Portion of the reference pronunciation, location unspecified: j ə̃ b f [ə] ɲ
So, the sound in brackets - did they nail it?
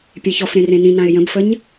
yes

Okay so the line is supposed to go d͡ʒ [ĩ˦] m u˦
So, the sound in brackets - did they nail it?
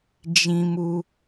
yes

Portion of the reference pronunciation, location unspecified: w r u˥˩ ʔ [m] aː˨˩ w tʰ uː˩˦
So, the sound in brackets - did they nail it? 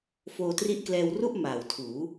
yes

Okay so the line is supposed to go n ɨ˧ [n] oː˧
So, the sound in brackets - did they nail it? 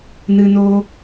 yes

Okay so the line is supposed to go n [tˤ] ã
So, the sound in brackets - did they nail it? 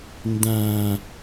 no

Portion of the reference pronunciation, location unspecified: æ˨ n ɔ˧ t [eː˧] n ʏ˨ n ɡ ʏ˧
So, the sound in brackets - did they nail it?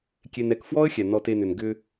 no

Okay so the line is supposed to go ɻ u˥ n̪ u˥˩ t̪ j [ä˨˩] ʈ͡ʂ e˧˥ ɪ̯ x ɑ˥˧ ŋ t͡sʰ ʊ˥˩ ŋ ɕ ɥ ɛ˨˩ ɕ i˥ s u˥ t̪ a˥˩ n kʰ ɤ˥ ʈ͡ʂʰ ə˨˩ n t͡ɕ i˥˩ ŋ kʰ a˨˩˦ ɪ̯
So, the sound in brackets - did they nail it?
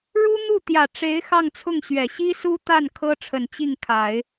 yes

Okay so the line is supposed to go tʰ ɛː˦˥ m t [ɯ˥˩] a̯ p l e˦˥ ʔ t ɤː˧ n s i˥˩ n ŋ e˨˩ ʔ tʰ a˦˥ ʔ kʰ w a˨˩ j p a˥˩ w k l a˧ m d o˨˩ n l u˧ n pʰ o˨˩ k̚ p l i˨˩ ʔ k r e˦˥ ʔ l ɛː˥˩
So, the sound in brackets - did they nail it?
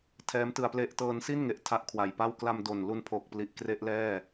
no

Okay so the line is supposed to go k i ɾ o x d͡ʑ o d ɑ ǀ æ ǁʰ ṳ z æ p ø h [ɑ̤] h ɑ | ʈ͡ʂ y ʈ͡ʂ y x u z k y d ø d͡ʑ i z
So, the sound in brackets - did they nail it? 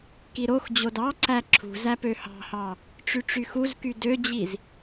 yes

